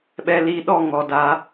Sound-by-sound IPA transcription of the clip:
ɓ ɛ˨ l i˨ ɗ ɔ˦˨ ŋ ɔ˨ d a˨˦

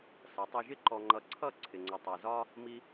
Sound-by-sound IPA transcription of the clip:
s ʌ˨˦ tˤ ʌ˧ ʒ ɪ˦ ǃ ɔ˧ ŋ͡ǃ ʌ˧ ǀʰ ʌ˦˨ ǀʰ ɪ˨ ŋ͡ǀ ʌ˨ tˤ ɛ˨ z ɒ˦ | m i˦

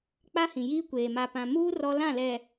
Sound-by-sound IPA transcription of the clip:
k͡p a˦ h ĩ˨ j iː˦ kʷ eː˨ m a˨ p ã˨ m uː˦ r ɔ˦ l ã˦˨ l ɛ˨

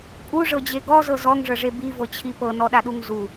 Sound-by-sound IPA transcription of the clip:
kʼ u ʐ ɤ d͡ʑ e ɡ ɔ z ɤ z ɔ ŋ ʐ ɤ ʐ e b i v ɤ t͡ɕʰ i p ɤ n ɔ ɗ a ɗ u ŋ z u

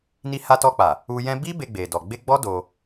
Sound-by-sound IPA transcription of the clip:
n i˧ h a˧ t ɔ˧ k͡p a˨ | u˧ j ɛ̃˦ b i˦ b e˧ ɡ͡b e˨ d ɔ˨ ɡ͡b e˧ ɡ͡b ɔ˦ d o˧

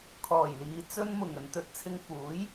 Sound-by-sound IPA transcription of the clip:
kʰ ɔː˨˩ j l iː˨ t͡s ɵ˧ n m ʊ˨˩ ŋ ɵ˨ n t̪ ɵ˨˥ t̚ t͡sʰ ɪ˧ ŋ f uː˨˥ j

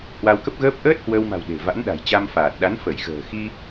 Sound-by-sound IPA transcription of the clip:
h w a˧ w k ə˦˥ p̚ ɣ əː˦˥ p̚ ʔ əː˦˥ t̚ h w əː˧ w m a̤˨˩ w ɗ e̤˨˩ v a̰˧˥ n ɗ a̤˨˩ j t͡ɕ a˧ m f aː˨˩ t̚ ɗ a˨˦ n f ə˧˩ j x ə̤ː˨˩ x i˧

